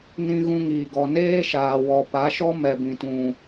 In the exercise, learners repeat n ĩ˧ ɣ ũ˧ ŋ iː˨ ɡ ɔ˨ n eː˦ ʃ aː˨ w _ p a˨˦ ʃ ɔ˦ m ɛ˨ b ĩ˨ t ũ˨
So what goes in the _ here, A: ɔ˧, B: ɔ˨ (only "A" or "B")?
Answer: B